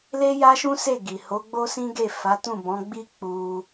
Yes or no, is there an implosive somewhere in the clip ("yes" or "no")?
no